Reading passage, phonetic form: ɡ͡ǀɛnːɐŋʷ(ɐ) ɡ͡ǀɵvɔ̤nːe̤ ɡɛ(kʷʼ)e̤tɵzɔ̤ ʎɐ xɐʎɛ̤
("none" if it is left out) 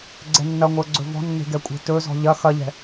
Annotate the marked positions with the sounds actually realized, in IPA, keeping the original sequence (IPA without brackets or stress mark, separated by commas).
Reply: ə˞, kʷʼ